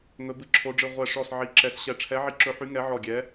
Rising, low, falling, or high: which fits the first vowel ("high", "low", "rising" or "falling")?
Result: rising